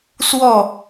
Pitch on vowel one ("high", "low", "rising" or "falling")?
falling